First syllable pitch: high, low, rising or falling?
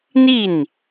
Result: falling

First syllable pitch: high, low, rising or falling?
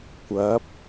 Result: rising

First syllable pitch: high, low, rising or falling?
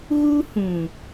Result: high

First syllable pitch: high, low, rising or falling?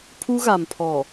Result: high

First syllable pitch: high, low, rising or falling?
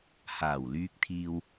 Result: low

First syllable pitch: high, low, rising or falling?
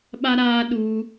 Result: high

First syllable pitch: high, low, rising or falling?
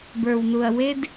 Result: low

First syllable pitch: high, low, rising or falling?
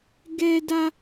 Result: high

